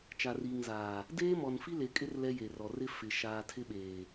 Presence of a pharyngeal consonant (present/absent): absent